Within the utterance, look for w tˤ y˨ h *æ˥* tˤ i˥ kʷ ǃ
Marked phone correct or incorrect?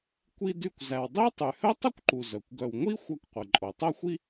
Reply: incorrect